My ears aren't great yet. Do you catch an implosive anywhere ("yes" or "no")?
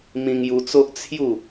no